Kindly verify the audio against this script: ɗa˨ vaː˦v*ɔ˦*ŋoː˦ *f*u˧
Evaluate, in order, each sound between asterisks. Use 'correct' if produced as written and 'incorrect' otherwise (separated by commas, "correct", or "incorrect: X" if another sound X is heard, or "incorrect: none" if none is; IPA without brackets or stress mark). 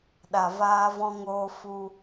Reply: incorrect: ɔ̃˦, correct